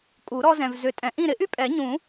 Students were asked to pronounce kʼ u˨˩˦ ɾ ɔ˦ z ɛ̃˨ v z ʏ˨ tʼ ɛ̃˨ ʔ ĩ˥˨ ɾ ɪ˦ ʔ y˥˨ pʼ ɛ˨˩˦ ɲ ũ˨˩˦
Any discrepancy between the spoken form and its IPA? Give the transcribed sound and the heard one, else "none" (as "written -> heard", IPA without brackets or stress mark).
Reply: none